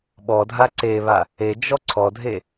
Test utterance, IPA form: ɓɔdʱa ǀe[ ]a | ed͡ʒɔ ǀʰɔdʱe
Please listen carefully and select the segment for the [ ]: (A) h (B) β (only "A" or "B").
B